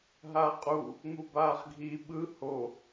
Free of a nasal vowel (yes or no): yes